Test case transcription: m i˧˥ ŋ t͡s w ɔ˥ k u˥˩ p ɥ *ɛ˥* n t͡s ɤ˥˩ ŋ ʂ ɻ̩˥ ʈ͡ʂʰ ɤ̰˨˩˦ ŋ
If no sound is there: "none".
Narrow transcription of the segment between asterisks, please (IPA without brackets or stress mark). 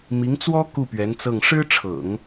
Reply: ɛ˧˥